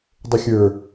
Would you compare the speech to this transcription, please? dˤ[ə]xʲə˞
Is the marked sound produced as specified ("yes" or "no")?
no